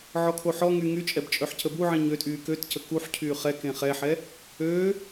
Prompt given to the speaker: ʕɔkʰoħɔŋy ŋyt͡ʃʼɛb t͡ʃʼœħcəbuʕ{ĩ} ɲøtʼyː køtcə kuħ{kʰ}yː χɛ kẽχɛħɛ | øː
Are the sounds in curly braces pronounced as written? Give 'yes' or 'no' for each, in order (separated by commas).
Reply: yes, no